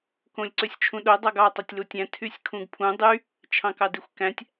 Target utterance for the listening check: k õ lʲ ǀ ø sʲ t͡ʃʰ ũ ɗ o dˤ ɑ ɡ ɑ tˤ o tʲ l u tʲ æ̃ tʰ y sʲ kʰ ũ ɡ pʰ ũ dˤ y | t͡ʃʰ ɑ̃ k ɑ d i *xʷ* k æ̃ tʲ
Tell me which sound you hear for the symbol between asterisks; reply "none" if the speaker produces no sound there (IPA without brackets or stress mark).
xʷ